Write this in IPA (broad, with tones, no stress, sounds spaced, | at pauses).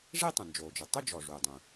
ʐ e˥˧ tˤ ə̃˩ n d͡ʒ oː˩ d͡ʒ ʏ˩ tˤ ʏ˥˧ d͡ʒ ɔ˩ ʐ uː˩ dˤ ũ˩